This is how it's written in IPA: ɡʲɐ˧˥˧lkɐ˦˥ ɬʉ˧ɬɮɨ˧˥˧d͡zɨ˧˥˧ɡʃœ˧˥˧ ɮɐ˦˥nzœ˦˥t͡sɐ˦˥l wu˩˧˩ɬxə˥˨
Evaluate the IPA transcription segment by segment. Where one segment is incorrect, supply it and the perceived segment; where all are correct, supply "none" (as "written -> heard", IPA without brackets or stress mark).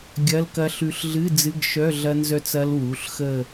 none